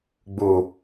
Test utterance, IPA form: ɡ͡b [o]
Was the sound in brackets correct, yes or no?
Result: no